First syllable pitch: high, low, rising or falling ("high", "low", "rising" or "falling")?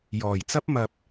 low